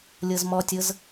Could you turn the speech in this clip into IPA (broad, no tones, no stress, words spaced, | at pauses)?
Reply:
lʲɤzmɔtʲɤz